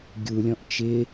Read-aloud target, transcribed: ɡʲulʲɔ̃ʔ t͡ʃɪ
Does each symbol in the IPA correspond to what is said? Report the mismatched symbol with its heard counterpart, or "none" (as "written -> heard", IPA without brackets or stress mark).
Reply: none